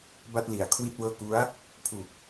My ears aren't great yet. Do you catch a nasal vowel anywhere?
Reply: no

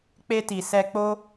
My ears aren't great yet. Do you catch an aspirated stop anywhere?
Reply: no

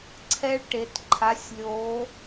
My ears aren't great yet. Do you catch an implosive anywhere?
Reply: no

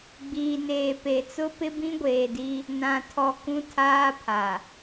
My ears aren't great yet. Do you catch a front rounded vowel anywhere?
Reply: no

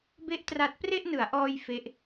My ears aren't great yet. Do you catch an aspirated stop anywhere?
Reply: no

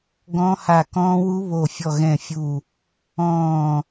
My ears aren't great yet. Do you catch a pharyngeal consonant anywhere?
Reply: no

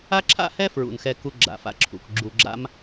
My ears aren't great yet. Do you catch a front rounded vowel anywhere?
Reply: no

